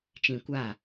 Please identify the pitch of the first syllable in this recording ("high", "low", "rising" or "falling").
low